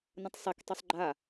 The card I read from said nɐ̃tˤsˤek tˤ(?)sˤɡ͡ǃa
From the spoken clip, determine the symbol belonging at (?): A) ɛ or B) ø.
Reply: B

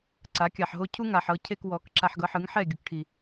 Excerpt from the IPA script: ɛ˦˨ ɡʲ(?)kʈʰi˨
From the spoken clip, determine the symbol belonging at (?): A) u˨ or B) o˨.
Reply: A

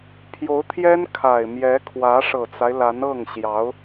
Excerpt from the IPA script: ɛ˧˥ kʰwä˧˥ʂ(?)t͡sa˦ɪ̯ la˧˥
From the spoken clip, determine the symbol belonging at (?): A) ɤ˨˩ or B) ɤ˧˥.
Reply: A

